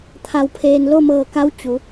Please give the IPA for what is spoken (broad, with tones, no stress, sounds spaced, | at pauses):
t̪ʰ a˧ w pʰ eː˧ n l o˥˨ m ɤː˧˩ k a˧˥ w t͡ɕ u˩˧